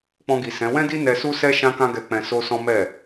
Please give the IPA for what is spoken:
k͡p ɔ̃˧ ɡ i˨ s ɛ̃˨˦ w ɛ̃˦ d i˦ n ɛ˧ s u˦ s ɛ˦ ʃ ã˦ k ã˦ ɡ ɛ˧ k͡p ɛ̃˧ s o˦ s ɔ̃˦ m ɛ˦˨

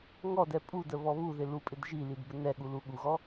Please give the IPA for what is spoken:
ŋ ɔ d ɛ pʼ u d ə β ɔ β u ð ɪ l u pʼ ɪ d ʒ i l i d b ə n ɛ ɠ u l u ɠ u ɣ ɔ

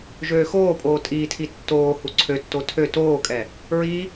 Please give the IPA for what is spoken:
ʒ øː x oː pʼ oː tʼ iː tʰ i tː oː h u ǀʰ ø tː o tʰ ø t oː kʼ ɛ | ɹ i

